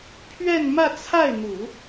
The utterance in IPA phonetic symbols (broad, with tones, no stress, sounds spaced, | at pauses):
pʰ ɥ ɛ˥˧ n m ä˥˧ t͡sʰ a˥˩ ɪ̯ n̪ u˨˩˦